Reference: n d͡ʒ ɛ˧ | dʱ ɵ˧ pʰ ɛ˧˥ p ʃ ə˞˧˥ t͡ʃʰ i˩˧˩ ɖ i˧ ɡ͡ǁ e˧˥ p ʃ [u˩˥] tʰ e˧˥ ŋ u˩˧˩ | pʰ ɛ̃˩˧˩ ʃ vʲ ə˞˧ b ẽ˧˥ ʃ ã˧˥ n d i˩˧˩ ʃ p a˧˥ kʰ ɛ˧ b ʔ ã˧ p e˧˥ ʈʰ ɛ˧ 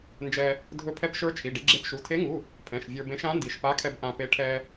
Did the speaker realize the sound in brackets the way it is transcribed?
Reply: no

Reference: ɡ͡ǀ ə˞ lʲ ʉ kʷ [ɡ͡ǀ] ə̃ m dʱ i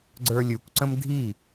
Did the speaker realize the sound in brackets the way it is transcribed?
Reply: no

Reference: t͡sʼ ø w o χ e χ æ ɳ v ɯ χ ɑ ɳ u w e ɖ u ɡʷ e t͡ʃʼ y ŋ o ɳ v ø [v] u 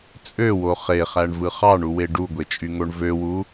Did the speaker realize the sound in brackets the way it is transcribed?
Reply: no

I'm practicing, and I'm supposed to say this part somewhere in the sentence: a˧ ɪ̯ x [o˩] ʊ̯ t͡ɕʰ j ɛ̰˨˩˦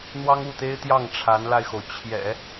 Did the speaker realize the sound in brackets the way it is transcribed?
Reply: yes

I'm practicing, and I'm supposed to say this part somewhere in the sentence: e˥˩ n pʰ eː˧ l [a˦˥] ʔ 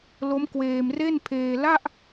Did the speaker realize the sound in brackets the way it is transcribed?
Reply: no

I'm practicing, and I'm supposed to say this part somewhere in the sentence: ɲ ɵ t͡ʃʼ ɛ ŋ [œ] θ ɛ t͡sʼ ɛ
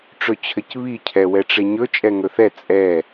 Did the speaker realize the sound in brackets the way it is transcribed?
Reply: no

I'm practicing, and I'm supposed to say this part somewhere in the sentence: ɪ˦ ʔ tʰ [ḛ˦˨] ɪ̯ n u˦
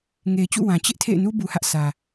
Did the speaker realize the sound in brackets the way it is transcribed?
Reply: yes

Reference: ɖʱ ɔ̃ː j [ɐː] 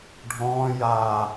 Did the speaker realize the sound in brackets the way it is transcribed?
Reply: no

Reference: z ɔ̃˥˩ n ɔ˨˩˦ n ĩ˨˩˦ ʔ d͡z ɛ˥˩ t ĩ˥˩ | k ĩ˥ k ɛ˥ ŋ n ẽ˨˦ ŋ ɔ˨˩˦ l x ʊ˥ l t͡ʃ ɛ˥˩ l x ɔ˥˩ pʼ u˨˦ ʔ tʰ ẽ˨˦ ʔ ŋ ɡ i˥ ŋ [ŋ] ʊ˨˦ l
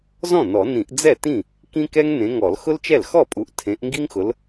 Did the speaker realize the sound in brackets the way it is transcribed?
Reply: no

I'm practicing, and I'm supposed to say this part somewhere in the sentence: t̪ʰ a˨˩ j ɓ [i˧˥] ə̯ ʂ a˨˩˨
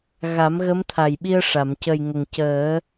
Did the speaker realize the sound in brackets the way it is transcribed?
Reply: no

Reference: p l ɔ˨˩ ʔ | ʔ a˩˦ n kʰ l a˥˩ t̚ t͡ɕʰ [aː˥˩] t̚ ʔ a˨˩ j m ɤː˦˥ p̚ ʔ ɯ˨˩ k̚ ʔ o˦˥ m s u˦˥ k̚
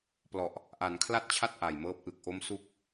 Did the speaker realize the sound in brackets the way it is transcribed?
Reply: no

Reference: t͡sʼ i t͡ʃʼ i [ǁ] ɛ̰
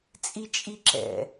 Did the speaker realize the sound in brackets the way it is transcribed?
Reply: yes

